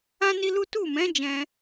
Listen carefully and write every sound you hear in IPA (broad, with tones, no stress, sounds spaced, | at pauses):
ã˦ n i˦ l u˦ t u˦˨ m ɛ̃˨˦ d͡ʒ ɛ̃˧